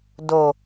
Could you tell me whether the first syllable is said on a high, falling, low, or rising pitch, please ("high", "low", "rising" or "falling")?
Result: low